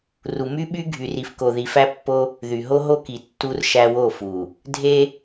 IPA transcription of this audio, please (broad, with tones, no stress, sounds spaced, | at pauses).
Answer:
r u˨ m y˦ ɓ y˦ ɡʱ y˨ r i˨ f k o˨ ð i˨ f æ˦ pː o˦ | ð y˨ ɦ o˦ ɦ o˦ k i˨ tː u˦ r ʃ æ˦ w o˦˨ f u˨ | dʱ e˦